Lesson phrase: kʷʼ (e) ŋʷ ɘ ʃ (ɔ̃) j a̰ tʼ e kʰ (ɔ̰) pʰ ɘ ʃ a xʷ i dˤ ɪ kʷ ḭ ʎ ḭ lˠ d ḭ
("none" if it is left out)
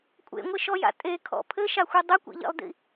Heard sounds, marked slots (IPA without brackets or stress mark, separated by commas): ḛ, ɔ, ɔ̰